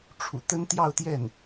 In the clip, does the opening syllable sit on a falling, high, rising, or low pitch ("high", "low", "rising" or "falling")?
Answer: low